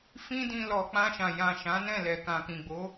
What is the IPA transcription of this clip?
f ĩ˦ d ĩ˧ l ɔ˨ k͡p ã˧ ʃ ã˨ j ã˨ ʃ ã˨˦ n ɛ̃˦˨ l ɛ˨ k ã˨ k ĩ˨ ɡ͡b o˨˦

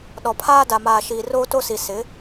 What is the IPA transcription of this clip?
ɗ ɔ˨ pʰ aː˦ d a˨ m aː˨ ʃ iː˨ r oː˦ t o˦ s i˨ s ɪ˨˦

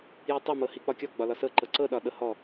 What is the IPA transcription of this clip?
j i tˤ ɛ m ɤ h i k͡p ɒ kʲ ɒ ɡ͡b ɒ l ɒ s ɤ ǃ ɤ ǀ ɤ ɗ ɒ ɗ ɤ h ɔ

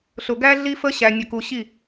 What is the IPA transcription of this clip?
ɬ ʊ˨ ɡ æ˦ ɮ i˦ f ə˦ ɕ æ˨ nʲ ə˨ k u˨ ɕ i˦˨

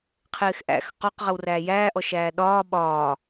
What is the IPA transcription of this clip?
qʰ ɪː x ʔ æ̰ x q ɔ q ʁ ə w r æː j æː ʔ ɔ ʃ æː ɗ ɒː ɓ ɒː

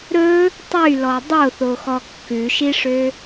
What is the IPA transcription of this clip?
ɾ ɵ | tˤ y l ɔ dˤ o θ o x ɔ kː ʉ ʃ i ʂ ø

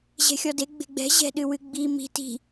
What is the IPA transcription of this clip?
ʑ ɛ̤ xʲ ɔ d e ɡ͡b e̤ ɡ͡b ɛ̤ ʑ ɛ̤ ɗ ɨ w ɨ ɡ͡b i m i̤ t i̤

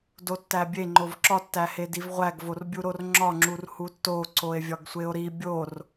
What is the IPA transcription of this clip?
d o tː æ bʲ e ŋ͡ǃ o v ǁ ɒ tː æ h e d i v ʁʷ æ ɡ v o r bʲ u ɾ o r ŋ͡ǁ ɒ ŋ͡ǁ u r h u tː o ǀ o e̯ vʲ ɒ ɡ sʷ e o̯ ɾ i bʲ o r

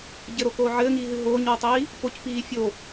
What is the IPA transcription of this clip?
ɟ ɘ ɾ o k oː ʕ ɘː ŋ iː ɦ ɨ ɦ oː ɲ w ɘ tˤ iː | p o c p iː fʲ o

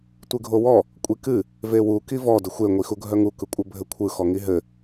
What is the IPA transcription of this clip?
tʷ ɨ ɡʱ o w ɔ | kʷʼ i k ɨ | v e w u k i v ɔ d ɘ xʷ e ŋʷ i x u ɡʱ œ ŋ u k ɯ kʷʼ ɘ bʱ ɘ kʷʰ ɯ x ɔ ŋ i ɦ ɘ

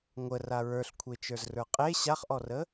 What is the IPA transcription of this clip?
ŋʷ ə r a ɹ ə˞ ɬ kʷʰ e t͡ʃ ə˞ z r ə˞ qʼ e ɕ a χ ʔ ɔ r ə

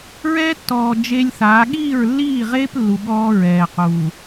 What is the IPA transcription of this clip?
ɹ ɛː˦ tː ɔː˨ d͡ʒ e˦ lʲ θ aː˨˦ ɠ iː˦˨ ɹ lː iː˦˨ ʁ eː˦ p lː u˨ ɠ ɔː˦ ɹ ɛː˨ q uː˨

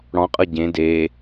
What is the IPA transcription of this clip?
ɽ ɔ̃ qʼ ɤ ɟ ẽ d e

